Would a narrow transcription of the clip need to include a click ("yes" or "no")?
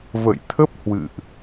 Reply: no